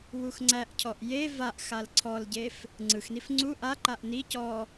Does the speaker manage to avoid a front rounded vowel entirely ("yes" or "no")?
yes